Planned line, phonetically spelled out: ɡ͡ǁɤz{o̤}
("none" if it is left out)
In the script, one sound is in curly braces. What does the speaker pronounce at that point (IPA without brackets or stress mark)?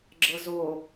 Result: o